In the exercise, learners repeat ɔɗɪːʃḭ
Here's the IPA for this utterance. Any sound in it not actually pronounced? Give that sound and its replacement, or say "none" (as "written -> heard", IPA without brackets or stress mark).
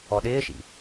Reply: none